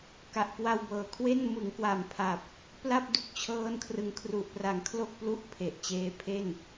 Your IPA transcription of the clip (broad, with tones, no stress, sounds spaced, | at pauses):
k a˨˩ ʔ k w a˧ w b ɤː˨˩ kʰ w e˥˩ n m ɯ˩˦ ŋ k w a˨˩ m pʰ a˨˩ p̚ | p l a˥˩ p̚ d u˥˩ k̚ t͡ɕʰ ɤː˦˥ n kʰ r ɯ˨˩ ŋ kʰ r u˨˩ ʔ p r a˩˦ ŋ kʰ l o˥˩ k̚ p l u˥˩ ʔ pʰ e˨˩ ʔ t͡ɕ eː˧ pʰ e˥˩ n